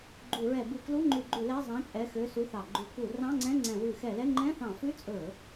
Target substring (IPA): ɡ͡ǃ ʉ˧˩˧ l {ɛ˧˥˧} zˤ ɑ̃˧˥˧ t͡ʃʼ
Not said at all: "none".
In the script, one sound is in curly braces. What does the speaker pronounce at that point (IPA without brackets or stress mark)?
ɛ˧˥˧